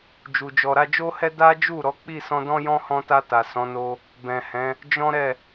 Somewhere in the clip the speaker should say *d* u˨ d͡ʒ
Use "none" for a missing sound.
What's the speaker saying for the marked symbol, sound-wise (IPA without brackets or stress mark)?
d͡ʒ